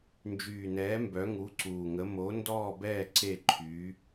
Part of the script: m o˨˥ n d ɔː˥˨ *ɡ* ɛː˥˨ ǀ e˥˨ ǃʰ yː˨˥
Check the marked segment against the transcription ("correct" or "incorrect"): incorrect